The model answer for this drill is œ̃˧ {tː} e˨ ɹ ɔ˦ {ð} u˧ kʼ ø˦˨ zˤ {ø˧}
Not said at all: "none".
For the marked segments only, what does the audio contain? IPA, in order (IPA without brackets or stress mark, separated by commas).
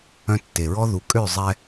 tː, ð, ɛ˧